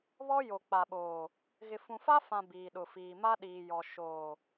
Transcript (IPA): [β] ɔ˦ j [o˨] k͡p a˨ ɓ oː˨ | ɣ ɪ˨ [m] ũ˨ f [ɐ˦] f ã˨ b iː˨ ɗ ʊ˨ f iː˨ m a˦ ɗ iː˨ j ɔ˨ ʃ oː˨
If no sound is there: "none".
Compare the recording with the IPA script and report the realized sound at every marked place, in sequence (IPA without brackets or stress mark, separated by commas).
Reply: β, o˨, f, a˦